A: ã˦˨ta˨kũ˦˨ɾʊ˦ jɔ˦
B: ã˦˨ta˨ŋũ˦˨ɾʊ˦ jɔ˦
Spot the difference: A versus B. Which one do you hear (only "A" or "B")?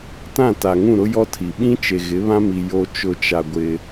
B